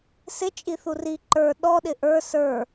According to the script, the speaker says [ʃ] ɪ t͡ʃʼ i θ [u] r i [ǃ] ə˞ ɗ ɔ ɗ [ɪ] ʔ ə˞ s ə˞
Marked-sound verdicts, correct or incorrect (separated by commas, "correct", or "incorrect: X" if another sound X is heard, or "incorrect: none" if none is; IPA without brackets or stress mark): incorrect: s, correct, correct, correct